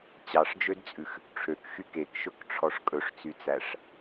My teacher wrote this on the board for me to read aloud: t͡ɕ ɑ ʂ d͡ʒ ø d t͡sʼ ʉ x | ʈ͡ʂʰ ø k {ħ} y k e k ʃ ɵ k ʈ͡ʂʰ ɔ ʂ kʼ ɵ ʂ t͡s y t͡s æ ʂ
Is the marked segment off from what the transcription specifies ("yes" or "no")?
yes